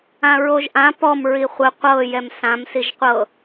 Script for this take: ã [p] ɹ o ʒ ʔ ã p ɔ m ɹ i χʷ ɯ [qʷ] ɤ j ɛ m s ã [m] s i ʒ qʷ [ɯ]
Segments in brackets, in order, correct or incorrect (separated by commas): incorrect, correct, correct, incorrect